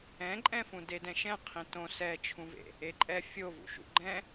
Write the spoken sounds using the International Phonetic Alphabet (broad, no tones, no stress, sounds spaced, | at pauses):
ɛ̃ ǃʼ ɛ̃ f ũ d e d ɛ̃ ʃ ɛ̃ qʰ ĩ t õ s ɛ t͡ʃʰ ũ v ḛ | e ǃʼ ɛ fʲ o v ṵ ʃ ṵ ɡ͡ǃ ɛ̃